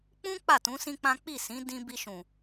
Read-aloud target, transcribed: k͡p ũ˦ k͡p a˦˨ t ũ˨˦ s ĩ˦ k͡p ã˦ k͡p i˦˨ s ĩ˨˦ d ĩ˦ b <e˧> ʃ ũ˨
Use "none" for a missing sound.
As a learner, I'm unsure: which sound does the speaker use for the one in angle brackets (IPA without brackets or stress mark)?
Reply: i˧